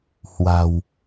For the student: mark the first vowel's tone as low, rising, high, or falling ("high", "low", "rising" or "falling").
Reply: low